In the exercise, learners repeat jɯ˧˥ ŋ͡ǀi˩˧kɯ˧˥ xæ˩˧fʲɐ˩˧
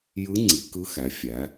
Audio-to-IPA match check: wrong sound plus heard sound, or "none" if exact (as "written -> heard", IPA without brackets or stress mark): ɐ˩˧ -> æ˩˧